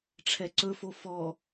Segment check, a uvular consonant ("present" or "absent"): absent